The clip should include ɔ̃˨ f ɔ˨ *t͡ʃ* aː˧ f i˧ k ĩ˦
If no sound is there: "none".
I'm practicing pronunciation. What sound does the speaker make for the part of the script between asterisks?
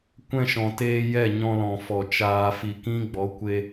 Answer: t͡ʃ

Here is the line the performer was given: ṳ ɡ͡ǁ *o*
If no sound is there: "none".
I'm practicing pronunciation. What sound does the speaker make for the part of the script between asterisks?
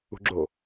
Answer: o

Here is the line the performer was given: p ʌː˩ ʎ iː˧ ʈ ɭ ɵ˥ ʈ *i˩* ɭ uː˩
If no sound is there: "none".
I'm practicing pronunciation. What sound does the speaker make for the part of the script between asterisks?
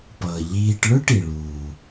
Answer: i˩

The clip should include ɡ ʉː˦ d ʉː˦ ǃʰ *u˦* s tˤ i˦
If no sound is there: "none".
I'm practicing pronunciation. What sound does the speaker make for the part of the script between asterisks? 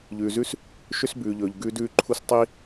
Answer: u˦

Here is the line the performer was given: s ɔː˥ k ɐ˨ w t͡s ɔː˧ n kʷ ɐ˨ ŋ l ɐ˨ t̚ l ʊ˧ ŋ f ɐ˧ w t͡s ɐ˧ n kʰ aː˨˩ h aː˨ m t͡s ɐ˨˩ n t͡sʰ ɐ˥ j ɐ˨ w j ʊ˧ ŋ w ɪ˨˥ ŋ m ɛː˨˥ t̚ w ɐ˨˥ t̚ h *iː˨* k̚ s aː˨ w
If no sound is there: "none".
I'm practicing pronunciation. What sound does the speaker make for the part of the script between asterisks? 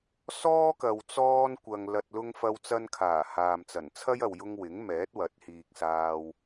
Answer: iː˨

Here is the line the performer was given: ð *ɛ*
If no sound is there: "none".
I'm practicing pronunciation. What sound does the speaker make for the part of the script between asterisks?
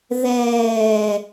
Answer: ɛː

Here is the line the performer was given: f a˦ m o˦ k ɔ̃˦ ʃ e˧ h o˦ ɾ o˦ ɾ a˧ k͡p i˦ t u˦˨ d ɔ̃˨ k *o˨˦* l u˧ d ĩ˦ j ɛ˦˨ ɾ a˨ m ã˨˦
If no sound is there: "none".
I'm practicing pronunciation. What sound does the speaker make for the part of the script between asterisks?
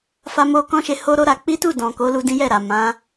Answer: o˨˦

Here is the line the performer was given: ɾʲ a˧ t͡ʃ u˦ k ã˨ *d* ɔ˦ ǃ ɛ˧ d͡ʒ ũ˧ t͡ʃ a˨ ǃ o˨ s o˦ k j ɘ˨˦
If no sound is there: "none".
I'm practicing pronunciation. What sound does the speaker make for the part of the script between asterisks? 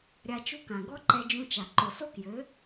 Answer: ɡ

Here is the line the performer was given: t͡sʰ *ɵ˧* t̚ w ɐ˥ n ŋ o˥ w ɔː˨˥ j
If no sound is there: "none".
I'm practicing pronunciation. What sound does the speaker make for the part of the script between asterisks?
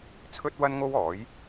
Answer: ɵ˥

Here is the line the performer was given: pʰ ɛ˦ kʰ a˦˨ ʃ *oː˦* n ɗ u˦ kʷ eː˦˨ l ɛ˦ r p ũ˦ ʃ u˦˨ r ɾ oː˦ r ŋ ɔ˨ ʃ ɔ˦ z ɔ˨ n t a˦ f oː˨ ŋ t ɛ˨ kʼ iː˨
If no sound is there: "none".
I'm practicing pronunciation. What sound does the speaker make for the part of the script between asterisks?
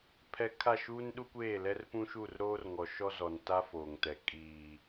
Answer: uː˦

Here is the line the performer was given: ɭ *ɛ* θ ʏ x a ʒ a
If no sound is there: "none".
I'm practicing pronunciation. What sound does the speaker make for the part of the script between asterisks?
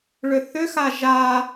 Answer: ʏ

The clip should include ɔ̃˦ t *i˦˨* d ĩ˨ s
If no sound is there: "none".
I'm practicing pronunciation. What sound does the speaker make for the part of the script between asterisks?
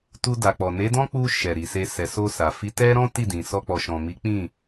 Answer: i˦˨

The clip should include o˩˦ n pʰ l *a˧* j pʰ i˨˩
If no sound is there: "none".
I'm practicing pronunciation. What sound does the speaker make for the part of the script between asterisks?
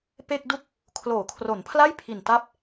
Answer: a˥˩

